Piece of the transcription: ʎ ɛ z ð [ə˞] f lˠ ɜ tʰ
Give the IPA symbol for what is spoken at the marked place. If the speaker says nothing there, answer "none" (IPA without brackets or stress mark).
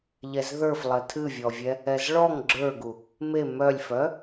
ə˞